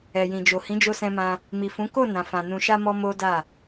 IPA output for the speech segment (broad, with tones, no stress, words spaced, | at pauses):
ɛ˨jĩ˨d͡ʒo˨ hĩ˨˦d͡ʒo˧sɛ̃˧mã˧ | mi˨fũ˨˦ ko˦˨ nã˨fã˨ nũ˨ʃa˧mɔ˧ mo˦da˦˨